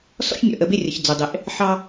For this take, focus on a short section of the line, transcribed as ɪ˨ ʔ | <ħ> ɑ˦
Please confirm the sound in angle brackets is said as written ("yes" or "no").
yes